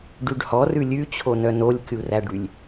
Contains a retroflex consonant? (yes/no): yes